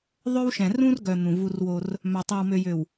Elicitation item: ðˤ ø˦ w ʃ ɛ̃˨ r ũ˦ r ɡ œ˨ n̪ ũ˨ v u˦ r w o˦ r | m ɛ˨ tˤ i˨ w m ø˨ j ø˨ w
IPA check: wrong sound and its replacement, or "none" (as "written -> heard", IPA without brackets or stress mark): ɛ˨ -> œ˨